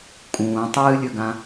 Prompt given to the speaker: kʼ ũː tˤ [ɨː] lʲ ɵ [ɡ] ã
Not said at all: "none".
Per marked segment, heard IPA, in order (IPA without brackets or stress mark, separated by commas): ɨː, ɡ